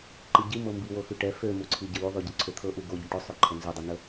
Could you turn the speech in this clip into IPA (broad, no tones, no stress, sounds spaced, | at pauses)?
ǃ i ɟ i m ɤ m b i w o x y ʈ ɛ f ø m u ǀʰ i ɟ ə w y ðˤ y ɟ ə ǀʰ ø t̪ʰ ɤ ʔ u ɡ o ɟ ə ʈ ɵ sˤ ø ǃʰ ə n z y dˤ ø n ə